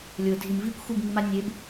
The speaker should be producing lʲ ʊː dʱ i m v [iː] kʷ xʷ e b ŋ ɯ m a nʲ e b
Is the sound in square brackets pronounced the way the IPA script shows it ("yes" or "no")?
yes